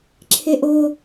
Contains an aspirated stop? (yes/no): yes